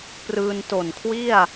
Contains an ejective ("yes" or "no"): no